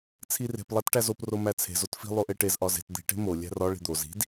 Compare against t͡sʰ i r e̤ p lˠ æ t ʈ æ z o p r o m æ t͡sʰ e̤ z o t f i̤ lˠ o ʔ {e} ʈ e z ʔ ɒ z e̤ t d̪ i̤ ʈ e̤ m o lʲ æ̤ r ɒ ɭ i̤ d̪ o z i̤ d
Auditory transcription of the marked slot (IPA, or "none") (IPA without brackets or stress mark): e